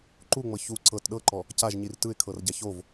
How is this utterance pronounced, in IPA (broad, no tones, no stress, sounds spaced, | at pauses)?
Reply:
ǃ u ŋ͡m ɤ ç u ǀ ɤ t ɗ ɤ ǃ ɔ | c a ʒ ɲ i r t ɯ ɪ̯ kʰ ɤ r ɟ a ç o v